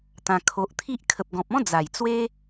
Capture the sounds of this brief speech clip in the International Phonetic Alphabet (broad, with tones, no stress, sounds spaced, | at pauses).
t̪ ã˧ kʰ o˨ ʔ t̪ʰ i˦ ʔ kʰ ə˨ p̚ ɡ ɔ̃˨ p̚ ɔ̃˦ d͡z a˨˩ j t͡s w e˦